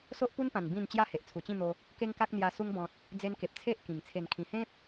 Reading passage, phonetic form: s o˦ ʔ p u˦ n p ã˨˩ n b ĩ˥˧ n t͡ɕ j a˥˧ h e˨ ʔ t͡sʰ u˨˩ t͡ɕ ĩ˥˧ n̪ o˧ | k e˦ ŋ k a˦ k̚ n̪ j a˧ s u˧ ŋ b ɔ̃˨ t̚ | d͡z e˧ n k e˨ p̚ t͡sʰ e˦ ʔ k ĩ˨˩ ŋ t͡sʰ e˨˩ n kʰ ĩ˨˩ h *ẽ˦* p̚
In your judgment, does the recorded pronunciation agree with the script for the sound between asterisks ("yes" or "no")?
yes